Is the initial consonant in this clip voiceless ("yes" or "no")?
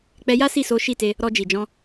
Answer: yes